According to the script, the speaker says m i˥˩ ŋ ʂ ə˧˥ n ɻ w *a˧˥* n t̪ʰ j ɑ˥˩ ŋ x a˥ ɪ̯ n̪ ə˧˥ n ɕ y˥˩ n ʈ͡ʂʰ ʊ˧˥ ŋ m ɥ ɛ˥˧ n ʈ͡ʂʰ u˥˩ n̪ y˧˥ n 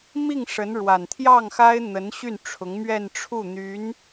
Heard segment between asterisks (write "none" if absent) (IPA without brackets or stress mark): a˨˩